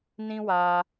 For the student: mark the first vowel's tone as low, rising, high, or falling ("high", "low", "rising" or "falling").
high